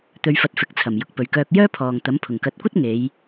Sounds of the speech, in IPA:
t̪ ɵ˧ ɥ f ɐ˧ t̚ f ɪ˨˥ k̚ t͡sʰ ɐ˨˩ m j ʊ˨ k̚ p ɵ˨ ɥ k œː˧ k̚ j œː˥ pʰ ɔː˨ ŋ t̪ ɐ˨˥ m pʰ ʊ˨˩ ŋ k ɐ˨˥ t̚ kʷ ɐ˥ t̚ ŋ e˨˧ j

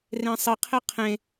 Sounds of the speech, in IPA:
r ẽ sˤ ɪ qʰ e qʰ ẽ

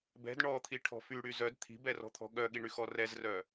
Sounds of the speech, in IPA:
b ɛ̤ d ɳ ɔ t̪ʰ i ʈʰ ɔ̤ f y ɽ y z œ d t̪ʰ i̤ b ɛ r ɔ̤ t̪ʰ ɔ̤ ɠ œ ɠ i ɳ y x ɔ r ɛ z r œ

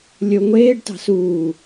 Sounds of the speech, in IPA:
lʲ o ŋʷ eː ɖ t ɑ̤ s uː

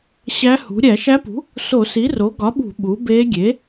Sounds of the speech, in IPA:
ɕ æ˧˥ h ṳ˩˥ ɾʲ æ˧˩˧ ʃ æ˧˥ p ṳ˩˥ | s o˧˩˧ s i˩˥ r o˩˥ ɡ ɒ˩˥ ɓ ṳ˧˩˧ ɓ u˩˥ b e˧˥ ɡʲ e˩˥

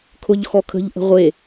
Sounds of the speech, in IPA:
kʰ ʊ ʎ x ɔ kʰ ə̤ ʎ ʔ ə̤ ʁʷ e

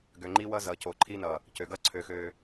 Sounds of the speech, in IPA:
ɡ ø˨ ŋ͡ǃ i˦ w ʌ˦ z ʌ˨ c o˨ ǃʰ i˦ n ʌ˨ | c ø˨ ɡ ʌ˦ ǀʰ ø˨ x ø˨

